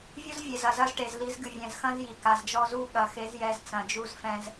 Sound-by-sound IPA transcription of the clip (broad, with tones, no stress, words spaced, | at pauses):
vʲu˦zvʲe˨zɐ˨ zɐ˦zʈe˨z li˨˦zɡɨ˨vʲɛ̃˨zxɐ̃˦z ji˨ka˨zd͡ʒɔ˦ zu˦ɠɐ˨ xe˨˦zjɛ˨z t͡sɐ̃˨d͡ʒu˦zfɛ̃˦z